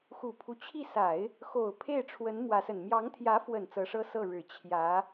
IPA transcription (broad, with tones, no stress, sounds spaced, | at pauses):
x u˨˩ pʰ u˦ t͡ɕʰ i˥˩ s a˨˩˦ ɪ̯ | x o˨˩ ʊ̯ pʰ e˥˩ ɪ̯ ʈ͡ʂʰ w ə˧˥ n m w ä˧˥ s ə˨˩ n m j ɑ˧˥ ŋ t̪ʰ j ä˧˥ f w ə˨˩ n t͡s ɤ˧˥ ʂ ɤ˥ s ɤ˥˩ ɻ ɻ̩˨˩ t͡ɕʰ j ä˧˥